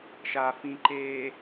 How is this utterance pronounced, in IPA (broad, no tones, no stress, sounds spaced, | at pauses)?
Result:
ʃ a f ĩ ǃ eː